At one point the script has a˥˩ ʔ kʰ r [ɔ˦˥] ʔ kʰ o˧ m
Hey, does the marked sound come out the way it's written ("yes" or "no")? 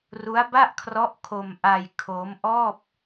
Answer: yes